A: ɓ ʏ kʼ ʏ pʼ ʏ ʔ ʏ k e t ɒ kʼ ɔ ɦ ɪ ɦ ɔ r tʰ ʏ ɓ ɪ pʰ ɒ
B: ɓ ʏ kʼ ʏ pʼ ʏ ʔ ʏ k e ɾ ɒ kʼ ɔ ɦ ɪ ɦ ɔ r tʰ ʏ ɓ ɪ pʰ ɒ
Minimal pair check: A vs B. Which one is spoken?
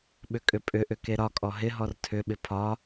B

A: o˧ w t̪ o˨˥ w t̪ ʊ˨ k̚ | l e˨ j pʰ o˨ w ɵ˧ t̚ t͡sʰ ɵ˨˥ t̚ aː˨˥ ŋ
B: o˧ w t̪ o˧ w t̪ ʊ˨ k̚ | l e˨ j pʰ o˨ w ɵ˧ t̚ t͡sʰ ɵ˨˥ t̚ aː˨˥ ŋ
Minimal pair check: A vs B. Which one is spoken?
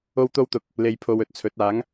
B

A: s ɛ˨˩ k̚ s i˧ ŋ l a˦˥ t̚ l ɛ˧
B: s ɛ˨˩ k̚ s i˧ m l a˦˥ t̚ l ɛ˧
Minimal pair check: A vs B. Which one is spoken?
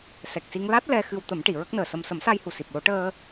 A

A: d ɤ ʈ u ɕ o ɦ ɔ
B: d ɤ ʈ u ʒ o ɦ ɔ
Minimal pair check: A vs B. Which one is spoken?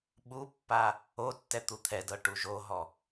B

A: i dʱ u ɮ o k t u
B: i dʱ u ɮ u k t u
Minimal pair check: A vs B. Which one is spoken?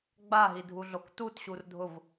A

